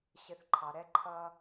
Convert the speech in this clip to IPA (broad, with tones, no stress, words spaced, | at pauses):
ɕɪ˨θ ǃʰɑ˨ɾɛ˦ǃʰʌ˦